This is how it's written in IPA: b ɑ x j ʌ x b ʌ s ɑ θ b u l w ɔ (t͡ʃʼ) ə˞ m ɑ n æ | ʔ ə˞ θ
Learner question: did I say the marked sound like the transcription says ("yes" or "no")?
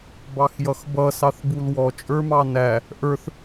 yes